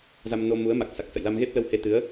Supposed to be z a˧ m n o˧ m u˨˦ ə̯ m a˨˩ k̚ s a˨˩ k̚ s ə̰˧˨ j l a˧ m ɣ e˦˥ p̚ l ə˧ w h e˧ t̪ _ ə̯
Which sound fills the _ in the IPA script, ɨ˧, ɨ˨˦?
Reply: ɨ˨˦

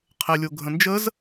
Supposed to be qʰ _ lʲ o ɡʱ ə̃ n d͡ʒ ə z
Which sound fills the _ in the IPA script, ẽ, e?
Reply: e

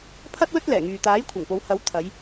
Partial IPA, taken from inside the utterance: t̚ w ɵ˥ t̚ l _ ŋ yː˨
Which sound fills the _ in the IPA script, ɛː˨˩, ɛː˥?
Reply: ɛː˨˩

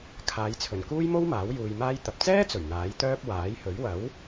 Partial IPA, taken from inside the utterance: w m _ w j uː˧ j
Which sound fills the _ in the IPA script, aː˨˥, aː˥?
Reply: aː˨˥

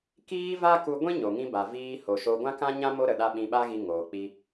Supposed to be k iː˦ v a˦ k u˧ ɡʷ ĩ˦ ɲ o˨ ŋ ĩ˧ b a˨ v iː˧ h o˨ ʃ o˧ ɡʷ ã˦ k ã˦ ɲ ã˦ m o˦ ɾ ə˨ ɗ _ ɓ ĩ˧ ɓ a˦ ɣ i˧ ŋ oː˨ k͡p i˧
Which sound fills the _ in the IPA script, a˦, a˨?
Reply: a˦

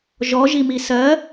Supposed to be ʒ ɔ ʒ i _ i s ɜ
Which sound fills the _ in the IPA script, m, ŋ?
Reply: m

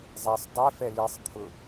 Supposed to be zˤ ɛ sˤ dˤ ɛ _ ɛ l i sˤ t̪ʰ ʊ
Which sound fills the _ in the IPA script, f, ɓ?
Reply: f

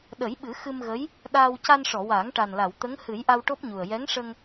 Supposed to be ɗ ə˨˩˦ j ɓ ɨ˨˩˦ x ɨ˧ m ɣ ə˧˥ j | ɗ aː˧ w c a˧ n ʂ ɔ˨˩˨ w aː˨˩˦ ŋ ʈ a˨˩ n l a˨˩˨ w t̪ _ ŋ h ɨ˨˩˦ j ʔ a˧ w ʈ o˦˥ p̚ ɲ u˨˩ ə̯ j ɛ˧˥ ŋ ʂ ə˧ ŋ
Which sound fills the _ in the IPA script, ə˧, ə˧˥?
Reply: ə˧˥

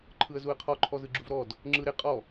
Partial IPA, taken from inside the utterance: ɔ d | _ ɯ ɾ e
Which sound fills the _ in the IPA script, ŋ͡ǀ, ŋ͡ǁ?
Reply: ŋ͡ǁ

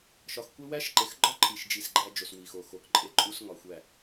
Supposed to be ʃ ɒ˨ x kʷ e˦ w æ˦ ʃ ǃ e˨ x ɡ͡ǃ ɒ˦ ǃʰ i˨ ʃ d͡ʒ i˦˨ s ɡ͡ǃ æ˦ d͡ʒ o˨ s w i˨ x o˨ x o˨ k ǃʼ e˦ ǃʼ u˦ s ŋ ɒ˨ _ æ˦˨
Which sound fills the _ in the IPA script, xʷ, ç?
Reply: xʷ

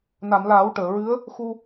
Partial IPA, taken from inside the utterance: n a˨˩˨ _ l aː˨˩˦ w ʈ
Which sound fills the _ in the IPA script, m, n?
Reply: m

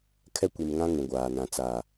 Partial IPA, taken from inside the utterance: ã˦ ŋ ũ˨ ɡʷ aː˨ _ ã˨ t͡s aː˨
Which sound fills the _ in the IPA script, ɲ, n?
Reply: n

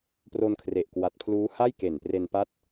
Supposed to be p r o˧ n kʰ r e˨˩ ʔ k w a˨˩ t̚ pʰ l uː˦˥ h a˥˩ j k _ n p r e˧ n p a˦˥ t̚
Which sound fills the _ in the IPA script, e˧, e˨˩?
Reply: e˨˩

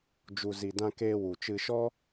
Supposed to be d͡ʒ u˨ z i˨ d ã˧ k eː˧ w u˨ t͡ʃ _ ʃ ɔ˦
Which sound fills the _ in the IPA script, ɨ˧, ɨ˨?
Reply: ɨ˧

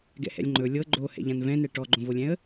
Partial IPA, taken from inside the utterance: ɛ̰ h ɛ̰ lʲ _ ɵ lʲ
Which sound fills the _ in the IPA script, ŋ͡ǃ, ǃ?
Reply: ŋ͡ǃ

